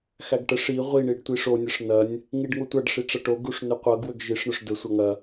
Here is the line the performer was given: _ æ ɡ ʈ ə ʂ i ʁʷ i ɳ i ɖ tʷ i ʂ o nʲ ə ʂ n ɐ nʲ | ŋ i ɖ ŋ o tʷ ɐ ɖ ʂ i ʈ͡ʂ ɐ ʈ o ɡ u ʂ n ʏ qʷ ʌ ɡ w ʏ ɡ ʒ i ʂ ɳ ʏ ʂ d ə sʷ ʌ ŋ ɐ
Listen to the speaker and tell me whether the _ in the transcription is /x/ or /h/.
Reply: x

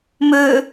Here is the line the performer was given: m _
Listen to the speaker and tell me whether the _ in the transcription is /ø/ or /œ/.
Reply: ø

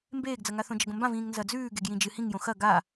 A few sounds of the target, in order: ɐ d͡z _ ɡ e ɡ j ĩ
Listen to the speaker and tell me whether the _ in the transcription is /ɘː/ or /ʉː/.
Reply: ʉː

